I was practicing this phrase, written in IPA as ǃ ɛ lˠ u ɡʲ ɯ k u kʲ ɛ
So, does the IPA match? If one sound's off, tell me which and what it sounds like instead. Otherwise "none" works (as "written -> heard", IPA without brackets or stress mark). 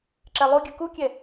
ǃ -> ǁ